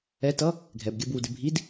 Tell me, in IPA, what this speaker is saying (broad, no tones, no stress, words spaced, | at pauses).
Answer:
ɛtʌ | ɡʱɛbɡʲɜbwudɪ bʱid